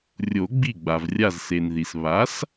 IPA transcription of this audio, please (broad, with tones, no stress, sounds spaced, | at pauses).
rʲ o˨˩˦ ɡ͡b i˧˩ ɡ͡b a˩ v rʲ a˧˩ z s e˩ n ð i˩ s β a˩˥ s